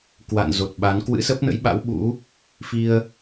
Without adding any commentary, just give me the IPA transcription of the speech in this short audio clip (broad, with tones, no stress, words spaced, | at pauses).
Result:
kwa̰˧˨n zo˨˩t̚ɓa˨˦n kwɨ̰˧˥sə˦˥p̚nə̰˧˥jɓa̰˧˥w ɓṵ˧˥ | fi˧ə̯